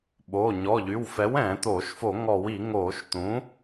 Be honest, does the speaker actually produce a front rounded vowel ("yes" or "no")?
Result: yes